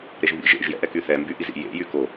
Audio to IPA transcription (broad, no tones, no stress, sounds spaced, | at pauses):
ɾ e ʒ β ḭ ʒ ḛ ʒ j ɛ̰ ʔ ɛ k y θ ɛ m b y ʔ i z ḭ j ḛ j y k o